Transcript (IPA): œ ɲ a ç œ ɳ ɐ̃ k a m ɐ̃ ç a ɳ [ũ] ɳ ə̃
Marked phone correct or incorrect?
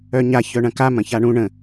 correct